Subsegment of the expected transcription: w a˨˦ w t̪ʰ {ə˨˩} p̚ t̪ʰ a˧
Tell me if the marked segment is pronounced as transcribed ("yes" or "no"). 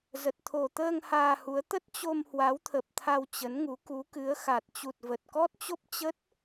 yes